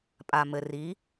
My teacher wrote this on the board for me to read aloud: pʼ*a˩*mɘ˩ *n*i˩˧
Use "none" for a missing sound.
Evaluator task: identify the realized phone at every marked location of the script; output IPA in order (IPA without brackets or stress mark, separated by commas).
a˩, r